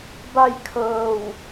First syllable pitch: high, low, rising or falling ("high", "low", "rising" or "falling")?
falling